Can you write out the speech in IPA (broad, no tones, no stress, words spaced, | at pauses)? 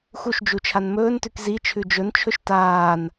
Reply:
xuʃd͡ʒu t͡ʃʰanmɵːntʉk zi t͡ʃʰʉd͡ʒɵnt͡ʃʰɵʃ taːn